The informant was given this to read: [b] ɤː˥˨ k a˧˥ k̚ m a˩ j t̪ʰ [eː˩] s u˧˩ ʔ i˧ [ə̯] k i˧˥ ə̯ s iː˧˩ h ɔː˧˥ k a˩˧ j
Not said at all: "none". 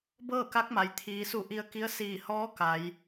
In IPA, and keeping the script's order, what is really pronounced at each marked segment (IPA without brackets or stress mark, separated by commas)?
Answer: b, iː˩, ə̯